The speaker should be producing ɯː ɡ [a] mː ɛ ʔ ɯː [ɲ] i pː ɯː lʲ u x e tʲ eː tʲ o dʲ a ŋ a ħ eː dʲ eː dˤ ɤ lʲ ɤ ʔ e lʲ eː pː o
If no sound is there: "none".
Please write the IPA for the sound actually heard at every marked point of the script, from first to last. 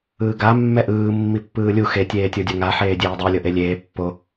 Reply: a, mː

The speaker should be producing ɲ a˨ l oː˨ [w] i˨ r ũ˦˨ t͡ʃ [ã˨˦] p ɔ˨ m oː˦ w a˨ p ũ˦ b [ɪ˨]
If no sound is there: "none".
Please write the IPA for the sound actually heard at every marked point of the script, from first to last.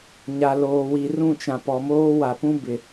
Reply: w, ã˨, ɪ˨

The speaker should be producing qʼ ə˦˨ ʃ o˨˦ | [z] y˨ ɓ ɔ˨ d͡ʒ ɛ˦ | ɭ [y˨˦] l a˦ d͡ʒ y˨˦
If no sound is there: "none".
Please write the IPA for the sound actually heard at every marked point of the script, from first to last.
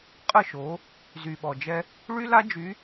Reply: z, y˦

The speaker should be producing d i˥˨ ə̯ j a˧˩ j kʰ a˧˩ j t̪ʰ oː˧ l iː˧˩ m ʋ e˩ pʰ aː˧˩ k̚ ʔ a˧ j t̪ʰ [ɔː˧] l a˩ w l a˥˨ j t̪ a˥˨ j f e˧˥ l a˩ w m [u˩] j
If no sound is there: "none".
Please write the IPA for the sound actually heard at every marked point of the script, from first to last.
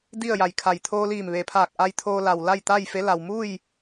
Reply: oː˧, u˥˨

